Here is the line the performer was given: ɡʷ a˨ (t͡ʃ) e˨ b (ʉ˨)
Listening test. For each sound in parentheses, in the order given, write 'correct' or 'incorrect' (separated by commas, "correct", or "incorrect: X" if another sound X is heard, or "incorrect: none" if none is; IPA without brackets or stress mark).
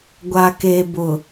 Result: incorrect: k, incorrect: ʊ˨